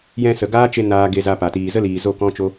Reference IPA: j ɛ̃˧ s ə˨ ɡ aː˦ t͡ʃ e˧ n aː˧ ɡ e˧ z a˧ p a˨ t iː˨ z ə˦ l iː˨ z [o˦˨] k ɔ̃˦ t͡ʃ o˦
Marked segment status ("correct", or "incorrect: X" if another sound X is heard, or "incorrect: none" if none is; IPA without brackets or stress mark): correct